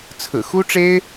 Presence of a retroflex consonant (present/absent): present